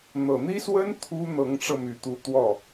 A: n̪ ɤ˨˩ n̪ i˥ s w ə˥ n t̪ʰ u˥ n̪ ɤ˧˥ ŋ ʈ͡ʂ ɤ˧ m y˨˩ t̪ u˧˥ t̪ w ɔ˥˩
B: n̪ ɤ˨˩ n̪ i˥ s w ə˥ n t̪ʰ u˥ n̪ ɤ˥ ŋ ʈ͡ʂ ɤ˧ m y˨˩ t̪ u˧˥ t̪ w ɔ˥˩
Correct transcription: A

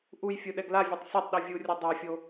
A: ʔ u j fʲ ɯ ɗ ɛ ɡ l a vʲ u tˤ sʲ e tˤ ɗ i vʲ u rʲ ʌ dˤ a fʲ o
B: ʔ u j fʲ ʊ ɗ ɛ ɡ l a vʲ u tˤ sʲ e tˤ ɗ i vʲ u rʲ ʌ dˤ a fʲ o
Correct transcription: A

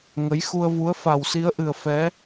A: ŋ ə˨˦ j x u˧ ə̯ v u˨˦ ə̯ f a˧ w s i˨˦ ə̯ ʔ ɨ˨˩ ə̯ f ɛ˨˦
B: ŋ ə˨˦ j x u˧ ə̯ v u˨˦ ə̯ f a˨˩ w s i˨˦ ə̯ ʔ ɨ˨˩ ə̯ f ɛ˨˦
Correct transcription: B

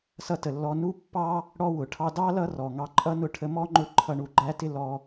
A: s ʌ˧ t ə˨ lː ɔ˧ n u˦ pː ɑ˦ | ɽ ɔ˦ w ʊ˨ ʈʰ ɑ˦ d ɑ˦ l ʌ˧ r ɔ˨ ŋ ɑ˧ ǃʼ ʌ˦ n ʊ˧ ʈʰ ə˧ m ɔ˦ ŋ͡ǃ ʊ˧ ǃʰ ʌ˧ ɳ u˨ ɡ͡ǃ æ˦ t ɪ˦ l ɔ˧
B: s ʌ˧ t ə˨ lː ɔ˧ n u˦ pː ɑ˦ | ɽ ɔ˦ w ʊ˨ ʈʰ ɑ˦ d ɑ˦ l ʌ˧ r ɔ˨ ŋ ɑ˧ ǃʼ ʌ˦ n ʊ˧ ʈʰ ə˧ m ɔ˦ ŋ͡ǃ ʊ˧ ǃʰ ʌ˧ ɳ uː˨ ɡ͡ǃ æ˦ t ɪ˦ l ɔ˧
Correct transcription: A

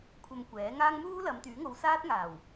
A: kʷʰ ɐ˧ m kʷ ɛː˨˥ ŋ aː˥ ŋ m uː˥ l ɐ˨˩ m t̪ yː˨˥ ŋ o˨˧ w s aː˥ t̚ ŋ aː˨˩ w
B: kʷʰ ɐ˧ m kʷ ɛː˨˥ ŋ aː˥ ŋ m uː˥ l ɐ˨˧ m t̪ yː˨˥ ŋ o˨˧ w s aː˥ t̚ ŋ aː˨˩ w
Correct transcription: B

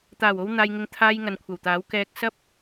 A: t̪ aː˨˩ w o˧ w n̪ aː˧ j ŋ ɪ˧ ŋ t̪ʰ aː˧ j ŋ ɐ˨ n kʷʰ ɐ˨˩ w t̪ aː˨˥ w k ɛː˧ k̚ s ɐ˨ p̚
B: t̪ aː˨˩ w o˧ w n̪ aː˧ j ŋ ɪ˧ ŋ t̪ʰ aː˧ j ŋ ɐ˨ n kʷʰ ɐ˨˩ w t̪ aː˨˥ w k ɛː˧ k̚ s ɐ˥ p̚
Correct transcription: B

